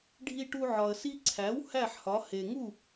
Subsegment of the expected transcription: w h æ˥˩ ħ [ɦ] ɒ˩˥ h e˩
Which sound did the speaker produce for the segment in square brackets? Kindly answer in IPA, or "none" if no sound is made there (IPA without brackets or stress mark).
h